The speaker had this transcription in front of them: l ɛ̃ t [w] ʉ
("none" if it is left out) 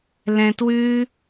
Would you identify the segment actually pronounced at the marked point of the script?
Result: w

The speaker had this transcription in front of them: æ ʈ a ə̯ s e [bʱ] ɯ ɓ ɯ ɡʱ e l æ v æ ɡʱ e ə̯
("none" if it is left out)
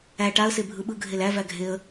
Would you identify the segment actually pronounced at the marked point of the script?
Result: bʱ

